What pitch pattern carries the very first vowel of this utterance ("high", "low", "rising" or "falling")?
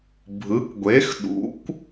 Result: rising